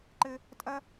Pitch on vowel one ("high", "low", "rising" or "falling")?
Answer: high